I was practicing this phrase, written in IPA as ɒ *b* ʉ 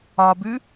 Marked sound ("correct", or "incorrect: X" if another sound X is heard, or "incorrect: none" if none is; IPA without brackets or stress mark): correct